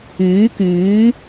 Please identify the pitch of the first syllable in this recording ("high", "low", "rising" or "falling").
rising